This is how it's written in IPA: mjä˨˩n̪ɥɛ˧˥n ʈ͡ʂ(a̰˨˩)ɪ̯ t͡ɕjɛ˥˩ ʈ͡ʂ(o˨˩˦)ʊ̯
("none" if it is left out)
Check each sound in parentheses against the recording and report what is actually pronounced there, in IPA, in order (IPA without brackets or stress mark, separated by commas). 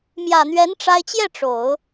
a˥, o˨˩˦